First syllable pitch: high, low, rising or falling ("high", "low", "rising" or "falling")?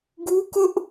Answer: high